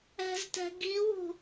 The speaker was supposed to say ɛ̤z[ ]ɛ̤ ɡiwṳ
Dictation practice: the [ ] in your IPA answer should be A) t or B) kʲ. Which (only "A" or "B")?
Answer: A